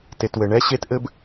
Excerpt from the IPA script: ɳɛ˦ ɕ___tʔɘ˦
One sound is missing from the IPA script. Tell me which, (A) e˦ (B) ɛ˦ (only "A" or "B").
A